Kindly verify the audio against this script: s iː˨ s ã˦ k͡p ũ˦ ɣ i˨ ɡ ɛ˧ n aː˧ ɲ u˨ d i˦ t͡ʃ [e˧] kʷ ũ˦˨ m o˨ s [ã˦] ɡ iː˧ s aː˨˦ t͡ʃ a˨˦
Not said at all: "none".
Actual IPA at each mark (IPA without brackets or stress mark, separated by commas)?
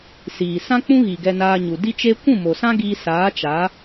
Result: e˧, ã˦